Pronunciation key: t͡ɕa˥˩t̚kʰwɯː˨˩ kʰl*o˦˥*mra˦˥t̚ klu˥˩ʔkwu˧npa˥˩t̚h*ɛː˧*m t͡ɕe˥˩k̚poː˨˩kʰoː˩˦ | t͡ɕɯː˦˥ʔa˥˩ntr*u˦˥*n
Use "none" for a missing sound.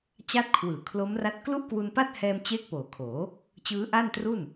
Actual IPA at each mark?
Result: o˦˥, ɛː˧, u˥˩

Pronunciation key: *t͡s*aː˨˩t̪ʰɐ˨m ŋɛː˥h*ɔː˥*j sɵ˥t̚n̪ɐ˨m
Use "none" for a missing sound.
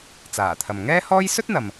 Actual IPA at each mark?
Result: t͡s, ɔː˥

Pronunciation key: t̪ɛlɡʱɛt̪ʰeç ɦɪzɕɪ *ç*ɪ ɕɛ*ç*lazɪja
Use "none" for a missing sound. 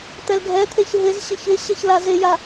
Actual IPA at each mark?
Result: ç, ç

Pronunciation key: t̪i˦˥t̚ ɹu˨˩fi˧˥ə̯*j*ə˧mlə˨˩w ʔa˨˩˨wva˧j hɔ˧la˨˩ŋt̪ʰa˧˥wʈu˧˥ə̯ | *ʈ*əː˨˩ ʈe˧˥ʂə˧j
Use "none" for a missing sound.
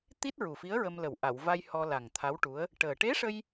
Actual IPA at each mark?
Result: ɹ, ʈ

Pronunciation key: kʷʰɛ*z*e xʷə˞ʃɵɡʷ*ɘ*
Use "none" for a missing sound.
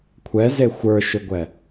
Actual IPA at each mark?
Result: z, ɛ

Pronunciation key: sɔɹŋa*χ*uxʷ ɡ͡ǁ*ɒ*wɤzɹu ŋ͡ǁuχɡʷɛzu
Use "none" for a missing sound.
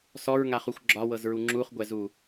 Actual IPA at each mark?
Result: χ, ɒ

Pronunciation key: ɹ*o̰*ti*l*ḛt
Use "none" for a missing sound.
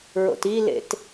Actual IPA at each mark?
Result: o̰, l

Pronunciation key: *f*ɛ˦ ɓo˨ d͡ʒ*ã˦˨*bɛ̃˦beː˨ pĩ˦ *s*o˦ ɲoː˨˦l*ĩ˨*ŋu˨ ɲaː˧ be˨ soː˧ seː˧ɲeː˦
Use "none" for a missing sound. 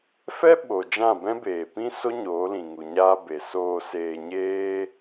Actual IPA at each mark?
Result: f, ã˦˨, s, ĩ˨

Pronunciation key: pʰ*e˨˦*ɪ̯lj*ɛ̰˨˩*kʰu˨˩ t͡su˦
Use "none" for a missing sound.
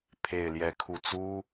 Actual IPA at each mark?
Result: e˨˩, ɛ˨˦

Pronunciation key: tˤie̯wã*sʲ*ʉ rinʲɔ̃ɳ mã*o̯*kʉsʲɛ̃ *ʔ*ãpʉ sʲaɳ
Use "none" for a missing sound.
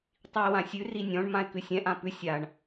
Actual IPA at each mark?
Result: sʲ, e̯, ʔ

